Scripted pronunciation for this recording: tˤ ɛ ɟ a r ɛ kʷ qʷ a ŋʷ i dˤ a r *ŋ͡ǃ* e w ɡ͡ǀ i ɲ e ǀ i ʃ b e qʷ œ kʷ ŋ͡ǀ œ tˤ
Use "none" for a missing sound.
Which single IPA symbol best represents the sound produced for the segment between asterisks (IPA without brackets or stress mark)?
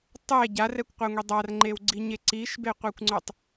ŋ͡ǃ